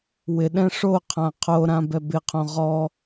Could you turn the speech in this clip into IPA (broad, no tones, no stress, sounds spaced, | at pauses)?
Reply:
w ɪ ɗ ɛ̃ ʂ o qʰ ã qʰ o ɾ ã b ɛ b ɪ qʰ õ ʁ ɔ